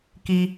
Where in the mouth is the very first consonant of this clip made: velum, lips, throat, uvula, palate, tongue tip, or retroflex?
velum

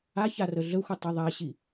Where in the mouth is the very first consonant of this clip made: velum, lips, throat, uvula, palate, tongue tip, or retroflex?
palate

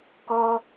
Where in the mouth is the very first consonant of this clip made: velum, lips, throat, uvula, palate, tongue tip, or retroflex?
velum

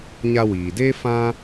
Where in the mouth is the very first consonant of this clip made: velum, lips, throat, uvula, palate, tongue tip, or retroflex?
palate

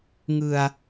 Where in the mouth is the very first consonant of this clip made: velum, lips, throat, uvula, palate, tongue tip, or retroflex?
velum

